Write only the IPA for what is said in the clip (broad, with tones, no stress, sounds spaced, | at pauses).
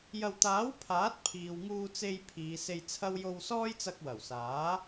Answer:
j ɐ˧ w t̪ aː˨˥ w pʰ aː˨˥ t̚ pʰ iː˨ w ŋ uː˧ t͡s e˧ j pʰ iː˨˧ s e˧ j t͡sʰ ɐ˥ w j o˧ w s ɔː˥ j t͡s ɐ˧ k̚ w ɐ˨˩ w s aː˨˥